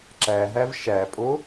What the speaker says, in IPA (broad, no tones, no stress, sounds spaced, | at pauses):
ǁ æ ɦ æ v ʃ æ pʼ o